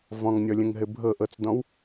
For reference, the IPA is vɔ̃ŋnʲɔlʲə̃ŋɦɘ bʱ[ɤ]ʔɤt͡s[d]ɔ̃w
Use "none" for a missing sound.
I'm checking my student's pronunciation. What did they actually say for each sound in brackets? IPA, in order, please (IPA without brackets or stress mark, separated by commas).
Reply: ɤ, d